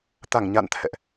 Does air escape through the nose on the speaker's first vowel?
no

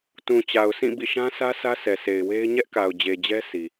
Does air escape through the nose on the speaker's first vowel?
yes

